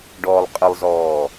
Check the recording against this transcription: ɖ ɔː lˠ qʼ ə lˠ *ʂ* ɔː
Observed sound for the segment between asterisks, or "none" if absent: z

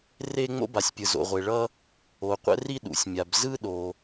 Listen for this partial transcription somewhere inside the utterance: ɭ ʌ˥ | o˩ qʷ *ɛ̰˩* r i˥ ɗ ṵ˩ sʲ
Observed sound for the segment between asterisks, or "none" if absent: ɛ̰˥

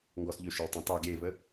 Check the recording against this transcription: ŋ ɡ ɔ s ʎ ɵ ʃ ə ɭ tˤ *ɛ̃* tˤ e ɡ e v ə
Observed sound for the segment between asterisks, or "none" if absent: ɛ̃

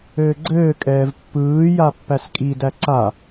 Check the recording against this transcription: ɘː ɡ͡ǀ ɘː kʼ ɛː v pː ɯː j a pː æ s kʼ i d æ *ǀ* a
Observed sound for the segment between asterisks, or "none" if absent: ǀ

